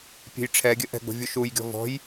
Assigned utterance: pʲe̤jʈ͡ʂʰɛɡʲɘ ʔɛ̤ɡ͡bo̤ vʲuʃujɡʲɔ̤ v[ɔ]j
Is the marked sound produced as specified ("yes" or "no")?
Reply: no